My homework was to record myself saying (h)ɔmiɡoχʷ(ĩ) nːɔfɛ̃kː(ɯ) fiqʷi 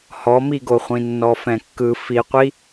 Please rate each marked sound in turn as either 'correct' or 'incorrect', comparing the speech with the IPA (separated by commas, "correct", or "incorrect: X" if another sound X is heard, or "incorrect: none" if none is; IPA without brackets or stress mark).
correct, correct, correct